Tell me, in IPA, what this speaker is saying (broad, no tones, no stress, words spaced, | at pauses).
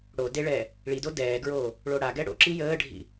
ɽo deɭɛː | ɭido dɛːɡɹoː | ɭoɽaɡɛ ɽo̰ǁi jəːɖʱḭ